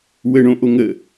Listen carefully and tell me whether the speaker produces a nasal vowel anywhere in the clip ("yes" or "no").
yes